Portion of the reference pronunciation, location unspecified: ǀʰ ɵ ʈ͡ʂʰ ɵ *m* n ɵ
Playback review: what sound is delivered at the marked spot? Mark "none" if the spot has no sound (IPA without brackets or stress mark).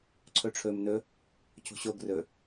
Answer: m